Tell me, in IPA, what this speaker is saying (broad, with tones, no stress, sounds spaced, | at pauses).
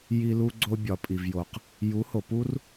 j i˧ l u˧ ɡ͡ǀ o˧ bʲ ɒ˨ pʼ i˨ v j o˨ q | j u˨˦ h o˨ p u˦ r